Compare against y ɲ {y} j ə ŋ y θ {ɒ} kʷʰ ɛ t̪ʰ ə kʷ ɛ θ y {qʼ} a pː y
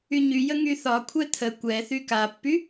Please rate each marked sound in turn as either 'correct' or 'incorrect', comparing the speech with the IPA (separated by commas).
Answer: correct, correct, incorrect